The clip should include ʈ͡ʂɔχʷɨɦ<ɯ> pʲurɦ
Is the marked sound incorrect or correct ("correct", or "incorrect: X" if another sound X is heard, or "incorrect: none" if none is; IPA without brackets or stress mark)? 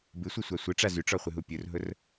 incorrect: u